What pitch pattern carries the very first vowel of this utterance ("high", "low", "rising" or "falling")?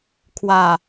low